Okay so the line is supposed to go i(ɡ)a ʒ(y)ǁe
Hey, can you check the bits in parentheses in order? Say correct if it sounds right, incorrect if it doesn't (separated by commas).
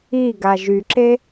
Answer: correct, correct